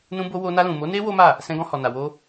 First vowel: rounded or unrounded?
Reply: rounded